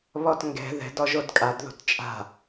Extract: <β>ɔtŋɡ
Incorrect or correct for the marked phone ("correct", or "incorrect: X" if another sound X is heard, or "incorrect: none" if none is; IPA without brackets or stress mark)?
correct